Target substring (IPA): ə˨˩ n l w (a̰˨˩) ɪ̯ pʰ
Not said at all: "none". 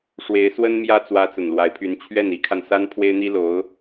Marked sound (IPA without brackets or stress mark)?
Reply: a˧˥